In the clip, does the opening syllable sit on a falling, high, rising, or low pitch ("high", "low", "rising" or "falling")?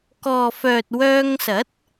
low